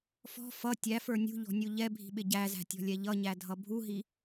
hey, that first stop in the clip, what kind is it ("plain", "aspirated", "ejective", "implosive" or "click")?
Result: plain